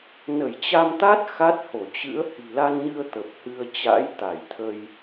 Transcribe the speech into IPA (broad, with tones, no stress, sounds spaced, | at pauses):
n ə˧˩ j t͡ɕ a˧ m t̪ a˦˥ t̚ x a˦˥ t̚ h o˧˩ t͡ɕ ɨ̰˧˥ ə̯ h i̤˨˩ l a˧ n ɲ ɨ˧ ə̯ t̪ ə˨˩ p̚ h ɨ˧ ə̯ t͡ɕ a̰˧˥ j t̪ a˧˩ j t̪ʰ ə˧ j